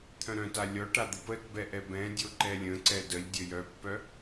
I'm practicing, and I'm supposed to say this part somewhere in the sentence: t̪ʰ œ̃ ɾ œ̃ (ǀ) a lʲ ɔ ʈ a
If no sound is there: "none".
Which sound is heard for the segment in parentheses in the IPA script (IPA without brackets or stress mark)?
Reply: t